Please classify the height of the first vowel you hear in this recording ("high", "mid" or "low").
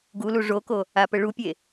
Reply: high